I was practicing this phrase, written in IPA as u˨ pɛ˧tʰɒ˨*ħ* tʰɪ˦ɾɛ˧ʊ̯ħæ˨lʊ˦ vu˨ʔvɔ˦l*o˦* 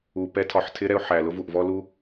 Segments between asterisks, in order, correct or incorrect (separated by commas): correct, incorrect